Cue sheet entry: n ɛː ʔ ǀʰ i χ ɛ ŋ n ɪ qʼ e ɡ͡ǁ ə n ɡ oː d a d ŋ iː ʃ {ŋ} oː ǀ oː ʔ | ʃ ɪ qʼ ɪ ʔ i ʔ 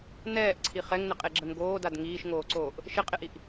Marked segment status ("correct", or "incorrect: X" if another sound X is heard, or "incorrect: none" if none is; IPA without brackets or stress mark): correct